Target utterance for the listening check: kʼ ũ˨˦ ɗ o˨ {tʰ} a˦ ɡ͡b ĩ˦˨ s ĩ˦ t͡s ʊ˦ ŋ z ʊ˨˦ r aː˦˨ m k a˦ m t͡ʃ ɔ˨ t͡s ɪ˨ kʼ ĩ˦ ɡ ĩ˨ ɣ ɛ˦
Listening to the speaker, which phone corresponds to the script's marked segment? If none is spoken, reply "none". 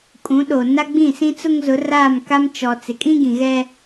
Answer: n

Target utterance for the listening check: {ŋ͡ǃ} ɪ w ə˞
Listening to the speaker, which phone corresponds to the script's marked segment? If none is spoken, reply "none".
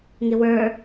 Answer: ŋ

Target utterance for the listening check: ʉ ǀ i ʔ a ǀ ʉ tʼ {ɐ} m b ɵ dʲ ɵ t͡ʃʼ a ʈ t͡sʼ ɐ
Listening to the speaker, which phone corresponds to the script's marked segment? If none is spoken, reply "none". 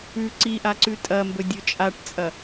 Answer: ɐ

